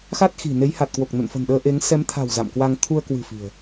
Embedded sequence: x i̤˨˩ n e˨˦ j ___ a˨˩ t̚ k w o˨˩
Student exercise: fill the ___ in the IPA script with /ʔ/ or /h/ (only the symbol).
h